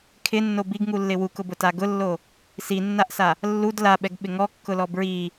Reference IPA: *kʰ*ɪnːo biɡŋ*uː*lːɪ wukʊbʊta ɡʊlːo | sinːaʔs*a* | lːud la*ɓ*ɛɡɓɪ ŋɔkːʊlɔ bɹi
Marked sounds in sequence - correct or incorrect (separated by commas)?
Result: correct, incorrect, correct, correct